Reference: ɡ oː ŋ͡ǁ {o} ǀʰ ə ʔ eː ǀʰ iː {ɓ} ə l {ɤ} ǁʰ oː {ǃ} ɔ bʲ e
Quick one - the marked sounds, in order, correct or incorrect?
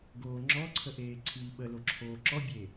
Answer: incorrect, correct, incorrect, incorrect

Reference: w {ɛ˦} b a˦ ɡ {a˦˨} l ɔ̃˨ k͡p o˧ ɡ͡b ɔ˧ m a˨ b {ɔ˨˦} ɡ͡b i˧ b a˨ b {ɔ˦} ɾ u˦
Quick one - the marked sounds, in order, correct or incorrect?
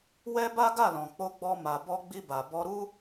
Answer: correct, correct, incorrect, incorrect

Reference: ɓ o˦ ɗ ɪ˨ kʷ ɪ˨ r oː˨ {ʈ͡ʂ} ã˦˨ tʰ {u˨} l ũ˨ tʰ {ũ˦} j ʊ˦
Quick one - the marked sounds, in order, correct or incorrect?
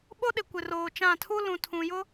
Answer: incorrect, incorrect, incorrect

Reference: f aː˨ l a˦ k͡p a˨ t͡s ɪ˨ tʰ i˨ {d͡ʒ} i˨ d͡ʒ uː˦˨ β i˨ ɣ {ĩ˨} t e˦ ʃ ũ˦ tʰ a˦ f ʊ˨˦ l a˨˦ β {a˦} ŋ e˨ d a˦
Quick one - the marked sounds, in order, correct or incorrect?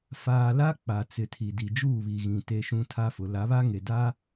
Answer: incorrect, correct, correct

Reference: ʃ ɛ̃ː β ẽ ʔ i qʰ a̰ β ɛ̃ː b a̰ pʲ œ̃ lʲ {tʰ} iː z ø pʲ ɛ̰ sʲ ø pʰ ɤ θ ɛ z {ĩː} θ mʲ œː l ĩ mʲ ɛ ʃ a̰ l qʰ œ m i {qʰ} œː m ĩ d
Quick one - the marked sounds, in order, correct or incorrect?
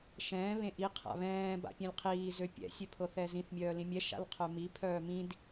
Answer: incorrect, incorrect, incorrect

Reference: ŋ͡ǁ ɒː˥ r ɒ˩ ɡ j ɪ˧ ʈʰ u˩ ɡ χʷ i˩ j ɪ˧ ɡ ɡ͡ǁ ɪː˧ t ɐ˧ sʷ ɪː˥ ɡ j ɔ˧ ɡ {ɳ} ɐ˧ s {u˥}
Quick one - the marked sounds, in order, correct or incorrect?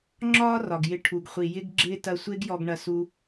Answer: correct, incorrect

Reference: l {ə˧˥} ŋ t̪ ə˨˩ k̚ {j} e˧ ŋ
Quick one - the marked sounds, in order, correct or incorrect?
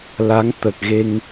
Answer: incorrect, incorrect

